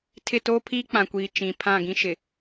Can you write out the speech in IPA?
tʰ ɪ˦˨ t oː˦ pʰ iː˦ k͡p ã˨ kʷ iː˨ t͡ʃ ĩ˨ pʰ ã˦˨ ɡ ĩ˦ ʃ ɪ˨

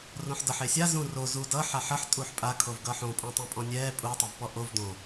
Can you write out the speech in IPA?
r õ ħ d ʌ ħ e sʲ a z ũ r o z u d ʌ ħ a ħ ʌ ħ tʼ u ħ pʼ a kʰ o v ɡ ʌ ħ õ pʼ õ tˤ õ pʼ ɔ̃ nʲ ɛː pʼ u tˤ ʌ v p ɔ ʔ o v d õ

